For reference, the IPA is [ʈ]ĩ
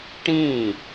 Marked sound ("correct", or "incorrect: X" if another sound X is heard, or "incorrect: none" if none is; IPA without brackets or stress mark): correct